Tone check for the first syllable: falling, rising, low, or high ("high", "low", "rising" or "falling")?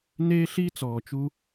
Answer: high